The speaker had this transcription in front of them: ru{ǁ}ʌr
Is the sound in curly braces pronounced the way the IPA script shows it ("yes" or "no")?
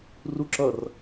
yes